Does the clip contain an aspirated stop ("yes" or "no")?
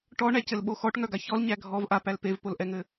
no